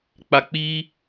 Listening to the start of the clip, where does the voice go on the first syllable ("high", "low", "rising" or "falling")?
low